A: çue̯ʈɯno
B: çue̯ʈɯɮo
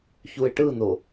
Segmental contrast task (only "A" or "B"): A